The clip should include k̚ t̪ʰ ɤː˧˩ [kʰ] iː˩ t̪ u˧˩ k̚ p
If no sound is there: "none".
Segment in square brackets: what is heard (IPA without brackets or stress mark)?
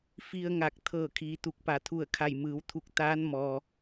kʰ